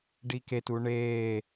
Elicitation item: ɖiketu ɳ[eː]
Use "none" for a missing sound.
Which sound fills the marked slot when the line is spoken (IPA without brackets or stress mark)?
eː